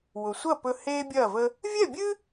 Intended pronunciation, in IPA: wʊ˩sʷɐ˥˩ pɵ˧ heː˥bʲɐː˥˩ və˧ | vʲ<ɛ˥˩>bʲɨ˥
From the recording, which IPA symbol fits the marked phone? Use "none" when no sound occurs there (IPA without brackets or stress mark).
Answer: ɛ˥˩